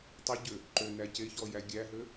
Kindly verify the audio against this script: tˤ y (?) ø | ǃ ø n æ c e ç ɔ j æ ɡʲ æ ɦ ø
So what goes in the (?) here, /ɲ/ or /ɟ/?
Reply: ɟ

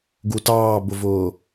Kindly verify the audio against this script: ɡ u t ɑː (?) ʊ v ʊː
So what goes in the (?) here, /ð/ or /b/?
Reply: b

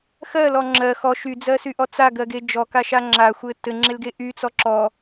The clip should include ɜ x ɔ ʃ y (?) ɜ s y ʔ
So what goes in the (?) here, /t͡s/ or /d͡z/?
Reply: d͡z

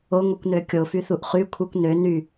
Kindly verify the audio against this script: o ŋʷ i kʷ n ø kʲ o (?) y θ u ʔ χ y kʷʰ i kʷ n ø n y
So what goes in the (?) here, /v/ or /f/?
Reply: f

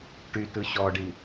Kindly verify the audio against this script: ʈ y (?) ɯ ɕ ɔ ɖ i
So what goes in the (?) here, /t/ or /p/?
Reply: t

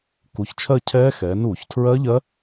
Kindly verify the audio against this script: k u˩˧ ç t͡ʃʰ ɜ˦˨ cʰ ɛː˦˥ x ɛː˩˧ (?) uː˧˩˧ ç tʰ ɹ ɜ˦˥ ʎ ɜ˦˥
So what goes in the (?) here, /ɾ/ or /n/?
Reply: n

